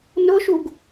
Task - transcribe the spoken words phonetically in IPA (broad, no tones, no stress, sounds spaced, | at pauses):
n ʊ ʃ u ɡ